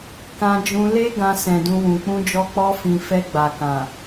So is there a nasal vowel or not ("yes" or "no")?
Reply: yes